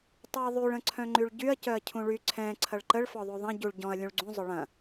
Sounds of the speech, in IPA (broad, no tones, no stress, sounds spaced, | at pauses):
tˤ u ɐ̯ ðˤ y ɭ ə̃ ǀʰ œ̃ ŋ͡ǃ y ɭ ɟ y ɐ̯ c œ ɐ̯ cʰ ũ ɭ y ǀʰ ɛ̃ ǀʰ ɐ ɭ ǃ ə ɭ f ɔ ðˤ u ðˤ ɐ̃ ɟ u ɭ ɟ ɔ̃ ɐ̯ lʲ ũ ɭ ɡ͡ǀ ũ zˤ ʊ ɭ ɐ̃